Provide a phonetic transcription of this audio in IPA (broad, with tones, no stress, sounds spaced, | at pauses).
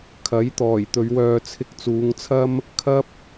kʰ ɐ˨˥ j t̪ ɔː˨˩ j t̪ ɵ˨˧ ɥ w œː˧ t͡sʰ ɪ˧ k̚ t͡s uː˨˧ ŋ t͡sʰ ɐ˥ m | kʰ ɐ˥ p̚